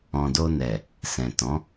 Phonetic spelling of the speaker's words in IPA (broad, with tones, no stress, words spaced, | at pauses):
ɔ̃˨do˧nɛ˨ | sɛ̃˨tɔ̃˨˦